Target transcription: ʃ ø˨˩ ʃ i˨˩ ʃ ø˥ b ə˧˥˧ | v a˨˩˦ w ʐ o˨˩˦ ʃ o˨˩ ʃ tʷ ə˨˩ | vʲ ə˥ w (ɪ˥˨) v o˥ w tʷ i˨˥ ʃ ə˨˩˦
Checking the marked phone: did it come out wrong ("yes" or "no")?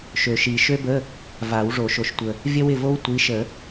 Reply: no